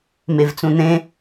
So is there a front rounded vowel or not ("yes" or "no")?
no